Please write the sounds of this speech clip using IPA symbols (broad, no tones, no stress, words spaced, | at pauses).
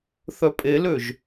θœpʼeløʒ